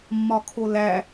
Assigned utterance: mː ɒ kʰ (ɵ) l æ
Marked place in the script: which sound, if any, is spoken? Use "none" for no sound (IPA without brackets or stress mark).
o